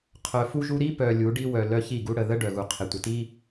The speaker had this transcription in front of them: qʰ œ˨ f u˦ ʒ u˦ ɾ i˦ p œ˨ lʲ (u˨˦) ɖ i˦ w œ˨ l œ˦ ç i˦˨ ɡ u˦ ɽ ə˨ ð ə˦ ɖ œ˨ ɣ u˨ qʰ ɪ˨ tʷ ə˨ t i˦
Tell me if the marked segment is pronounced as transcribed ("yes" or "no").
yes